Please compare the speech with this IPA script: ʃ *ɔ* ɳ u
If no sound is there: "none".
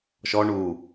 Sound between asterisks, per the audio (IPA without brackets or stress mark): ɔ